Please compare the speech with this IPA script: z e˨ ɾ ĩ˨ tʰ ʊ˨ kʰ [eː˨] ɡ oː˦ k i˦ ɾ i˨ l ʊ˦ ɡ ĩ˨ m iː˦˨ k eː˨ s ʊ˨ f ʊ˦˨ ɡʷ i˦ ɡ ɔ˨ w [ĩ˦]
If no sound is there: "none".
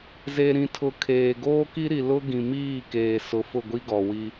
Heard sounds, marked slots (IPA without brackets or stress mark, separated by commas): eː˨, i˦